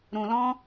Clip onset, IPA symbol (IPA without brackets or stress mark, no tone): ɾ